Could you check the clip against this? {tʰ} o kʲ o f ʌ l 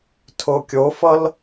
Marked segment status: correct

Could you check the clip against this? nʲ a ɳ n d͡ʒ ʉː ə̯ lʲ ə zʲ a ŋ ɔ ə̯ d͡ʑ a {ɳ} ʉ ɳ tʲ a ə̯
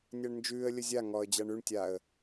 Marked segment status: correct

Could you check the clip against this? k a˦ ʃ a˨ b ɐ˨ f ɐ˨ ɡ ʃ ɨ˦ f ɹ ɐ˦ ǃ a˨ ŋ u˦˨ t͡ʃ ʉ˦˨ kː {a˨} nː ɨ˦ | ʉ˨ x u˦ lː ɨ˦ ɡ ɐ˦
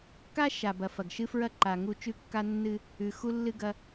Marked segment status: incorrect: a˦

